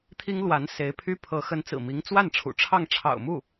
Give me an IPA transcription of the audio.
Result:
t̪ʰi˥ŋlwa˧˥n se˧˥ɪ̯pʰy˥pʰɤ˧˥ xə˧˥nt͡sɹ̩˨˩mi˧˥ŋ t͡swa˥˩nʈ͡ʂʰṵ˨˩ʈ͡ʂʰɑ˥˩ŋ ʈ͡ʂʰɑ̰˨˩ʊ̯mu˥˩

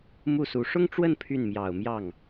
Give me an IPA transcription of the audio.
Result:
mu˥˩su˧˥ ʂʊ˥ŋʈ͡ʂwə˥˧n pʰy˥˩nmjɑ˨˩ʊ̯mjɑ˥˩ŋ

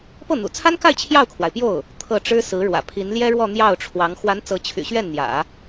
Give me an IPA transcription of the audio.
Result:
pɤ˥˩n̪ṵ˨˩t͡sʰa˥nka˥˧ɪ̯ t͡ɕʰjɑ˥˩ʊ̯kʰwa˩ɪ̯pjo˥˩ʊ̯ | t̪ʰɤ˥˩ʈ͡ʂɻ̩˥ sɹ̩˧˥ɻwä̰˨˩ pʰi˧˥nljɛ˥ɻwɔ˥˧ n̪jɑ˥˩ʊ̯ʈ͡ʂʰwɑ˧˥ŋ xwa˧˥n t͡sɤ˧˥t͡ɕʰy̰˨˩ɕɥɛ˥˩n n̪jä̰˨˩˦

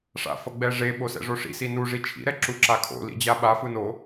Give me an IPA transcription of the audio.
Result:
ʂa̰ fʌɡ͡bɛʐe ɓosɛ̰ʐoʂḭ sinu ʐit͡ʃʰḭ ɾɛǁuǁakʰo̰ lḭd͡ʑaɓa fɯno

